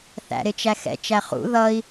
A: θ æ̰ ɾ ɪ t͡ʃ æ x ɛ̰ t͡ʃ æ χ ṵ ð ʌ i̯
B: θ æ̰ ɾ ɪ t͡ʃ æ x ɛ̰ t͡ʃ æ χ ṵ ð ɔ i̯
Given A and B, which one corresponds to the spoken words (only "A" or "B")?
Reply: A